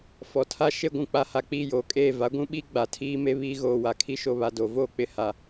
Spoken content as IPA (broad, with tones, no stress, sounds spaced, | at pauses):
f ɔ˨ tʰ a˦ ʃ e˦ ɡʷ ũ˨ k͡p a˦ h a˨ k͡p iː˦˨ j oː˨ kʼ eː˦˨ v a˨˦ ɡʷ ũ˦ ɓ i˦ ɡ͡b a˨ tʰ iː˦ m e˦ β iː˦ ɣ oː˨ w a˨ kʰ i˦ ʃ o˨ β a˨ d o˨ v oː˦ k͡p ɪ˨ h a˨